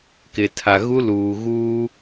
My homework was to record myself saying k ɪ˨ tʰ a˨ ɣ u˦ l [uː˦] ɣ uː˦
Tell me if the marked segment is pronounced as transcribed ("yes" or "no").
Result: no